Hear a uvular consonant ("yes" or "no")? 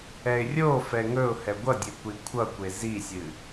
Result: no